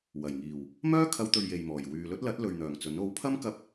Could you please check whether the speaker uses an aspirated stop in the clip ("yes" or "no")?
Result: yes